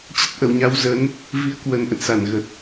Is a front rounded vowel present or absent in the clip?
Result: absent